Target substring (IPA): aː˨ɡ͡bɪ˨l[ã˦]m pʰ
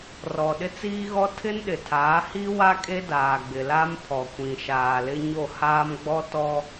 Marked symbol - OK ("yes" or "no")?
no